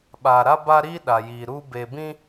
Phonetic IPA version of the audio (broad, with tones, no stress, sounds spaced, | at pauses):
ɓ aː˨ ɾ a˦ b a˦ ɾ iː˦ ɗ a˨ j iː˨ ɾ uː˦ b e˨ b ĩ˦